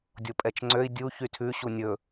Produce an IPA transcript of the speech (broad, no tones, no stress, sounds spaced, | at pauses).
dʲ o pʼ ɛ t͡ʃ ŋ͡ǀ ø i̯ dʲ u ç y tʰ ʉ ɕ u nʲ ɵ